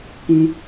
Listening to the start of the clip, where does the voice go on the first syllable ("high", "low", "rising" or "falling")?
high